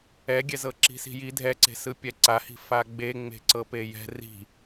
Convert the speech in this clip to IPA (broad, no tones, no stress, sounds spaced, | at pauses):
ɛ ɡʲ ɛ z ɤ ǁ i̤ s i̤ j i dʱ ɛ ǀ e̤ s ɯ pʲ ɛ ǀ a h i̤ f a ɡ͡b e ŋ͡m e̤ ǀ ɤ p e j ɛ̤ r i̤